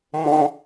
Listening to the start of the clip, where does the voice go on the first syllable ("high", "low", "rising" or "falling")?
high